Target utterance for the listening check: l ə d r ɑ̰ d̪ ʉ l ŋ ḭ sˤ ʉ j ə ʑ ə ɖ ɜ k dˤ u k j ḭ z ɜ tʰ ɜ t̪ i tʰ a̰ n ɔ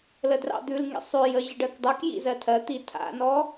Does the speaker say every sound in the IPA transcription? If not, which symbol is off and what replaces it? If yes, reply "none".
none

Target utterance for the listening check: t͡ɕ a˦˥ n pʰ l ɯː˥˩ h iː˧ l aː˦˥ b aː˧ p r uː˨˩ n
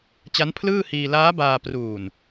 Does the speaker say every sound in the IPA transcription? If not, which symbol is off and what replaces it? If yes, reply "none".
none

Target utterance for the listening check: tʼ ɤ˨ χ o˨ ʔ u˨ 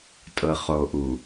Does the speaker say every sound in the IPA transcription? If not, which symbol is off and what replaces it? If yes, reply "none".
none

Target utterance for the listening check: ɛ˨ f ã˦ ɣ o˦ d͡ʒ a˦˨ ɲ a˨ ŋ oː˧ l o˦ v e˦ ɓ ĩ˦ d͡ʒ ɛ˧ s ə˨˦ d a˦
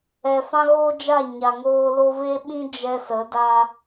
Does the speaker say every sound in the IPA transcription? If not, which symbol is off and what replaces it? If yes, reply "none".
none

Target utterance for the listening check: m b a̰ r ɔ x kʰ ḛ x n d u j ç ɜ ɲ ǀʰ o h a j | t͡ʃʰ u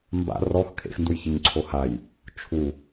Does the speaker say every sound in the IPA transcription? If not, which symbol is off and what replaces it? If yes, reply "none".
none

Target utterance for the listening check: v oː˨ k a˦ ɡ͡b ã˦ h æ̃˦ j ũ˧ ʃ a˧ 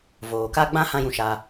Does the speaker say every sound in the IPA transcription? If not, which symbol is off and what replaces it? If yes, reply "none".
æ̃˦ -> ã˦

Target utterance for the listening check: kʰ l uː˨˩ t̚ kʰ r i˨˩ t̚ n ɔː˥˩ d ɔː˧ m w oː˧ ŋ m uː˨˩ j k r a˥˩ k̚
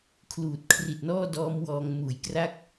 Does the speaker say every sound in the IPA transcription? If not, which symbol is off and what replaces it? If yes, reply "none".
oː˧ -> ɔː˧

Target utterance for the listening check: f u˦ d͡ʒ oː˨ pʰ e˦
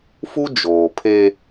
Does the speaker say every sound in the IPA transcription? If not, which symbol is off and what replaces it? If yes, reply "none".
none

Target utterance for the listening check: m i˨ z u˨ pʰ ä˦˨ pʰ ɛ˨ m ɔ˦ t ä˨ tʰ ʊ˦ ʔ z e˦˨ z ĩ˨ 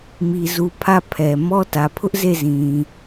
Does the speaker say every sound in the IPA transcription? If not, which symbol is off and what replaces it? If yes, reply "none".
tʰ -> pʰ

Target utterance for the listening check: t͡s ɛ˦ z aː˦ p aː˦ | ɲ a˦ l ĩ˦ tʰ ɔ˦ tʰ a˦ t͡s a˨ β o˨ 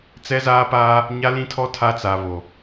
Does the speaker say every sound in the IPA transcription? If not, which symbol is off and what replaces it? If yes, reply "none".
none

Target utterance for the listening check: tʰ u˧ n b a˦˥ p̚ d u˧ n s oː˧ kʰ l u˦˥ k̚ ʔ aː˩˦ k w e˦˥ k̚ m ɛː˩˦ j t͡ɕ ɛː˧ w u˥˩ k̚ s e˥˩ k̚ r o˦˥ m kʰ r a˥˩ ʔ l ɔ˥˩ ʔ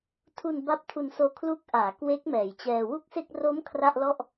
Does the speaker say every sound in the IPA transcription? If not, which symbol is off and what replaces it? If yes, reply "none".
d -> tʰ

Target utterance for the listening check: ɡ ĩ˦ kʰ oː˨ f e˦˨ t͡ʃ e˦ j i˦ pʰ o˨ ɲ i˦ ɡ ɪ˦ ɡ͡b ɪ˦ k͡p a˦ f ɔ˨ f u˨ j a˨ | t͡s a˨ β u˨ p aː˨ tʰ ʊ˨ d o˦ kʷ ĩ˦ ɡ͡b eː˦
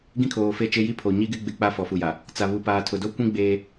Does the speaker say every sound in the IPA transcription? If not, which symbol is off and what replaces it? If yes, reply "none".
none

